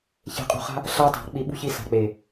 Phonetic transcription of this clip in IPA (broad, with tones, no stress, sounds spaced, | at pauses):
ç e̤˧ qʼ ṳ˧ χ a̤˦ | ɬ a˦ tˤ a̤˨˦ k͡p i˧ ɓ ṳ˦ ç i˧ s a̤˨ k͡p e˨